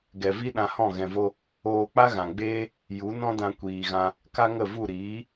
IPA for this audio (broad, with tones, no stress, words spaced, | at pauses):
ɡɛ˨vi˦ ɗã˧hɔ̃˦˨ ɣɛ̃˨vo˧ | oː˧k͡pa˦ɣã˨ɡ͡beː˦ | ju˨˦nɔ̃˦dã˧ kʷiː˨ɣã˧ | ka˦ŋə˦˨vu˦˨ ɾiː˨˦